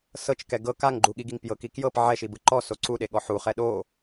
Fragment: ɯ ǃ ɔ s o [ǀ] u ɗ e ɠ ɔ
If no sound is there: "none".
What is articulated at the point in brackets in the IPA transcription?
ǀ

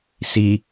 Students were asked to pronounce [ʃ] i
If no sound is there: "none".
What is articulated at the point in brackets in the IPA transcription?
s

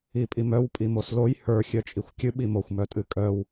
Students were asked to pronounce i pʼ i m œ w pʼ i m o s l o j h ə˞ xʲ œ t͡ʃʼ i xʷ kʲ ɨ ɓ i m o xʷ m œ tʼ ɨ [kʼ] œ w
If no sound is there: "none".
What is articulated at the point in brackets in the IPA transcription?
kʼ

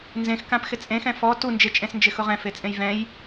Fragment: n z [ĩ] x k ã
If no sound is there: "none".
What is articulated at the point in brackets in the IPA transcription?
ẽ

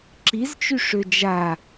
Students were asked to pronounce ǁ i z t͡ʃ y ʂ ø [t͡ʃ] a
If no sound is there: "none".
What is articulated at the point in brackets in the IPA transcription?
d͡ʒ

